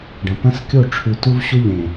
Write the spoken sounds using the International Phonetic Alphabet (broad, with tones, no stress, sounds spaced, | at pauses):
ɖ ɐ̃˨ p ɐ̃˦ s kʲ o˦˨ ʈ͡ʂʰ ʉ˨ t u˦ v ɕ u˦ ʎ ẽ˨